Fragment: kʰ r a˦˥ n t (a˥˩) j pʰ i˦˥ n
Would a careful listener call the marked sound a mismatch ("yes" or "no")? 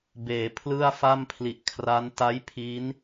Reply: yes